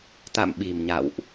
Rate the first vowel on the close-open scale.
open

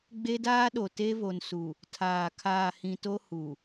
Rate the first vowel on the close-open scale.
mid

